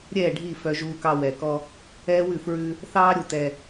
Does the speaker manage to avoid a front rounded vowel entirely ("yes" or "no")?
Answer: no